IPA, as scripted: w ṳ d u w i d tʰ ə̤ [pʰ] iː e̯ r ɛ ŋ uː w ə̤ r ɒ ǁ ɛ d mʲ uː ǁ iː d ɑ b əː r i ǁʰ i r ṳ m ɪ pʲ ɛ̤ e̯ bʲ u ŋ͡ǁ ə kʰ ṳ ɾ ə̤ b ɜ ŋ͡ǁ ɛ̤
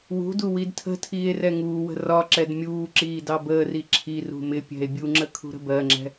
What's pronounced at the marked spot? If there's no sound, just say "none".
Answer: tʰ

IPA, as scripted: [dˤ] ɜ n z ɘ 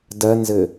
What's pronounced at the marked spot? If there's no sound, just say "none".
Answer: d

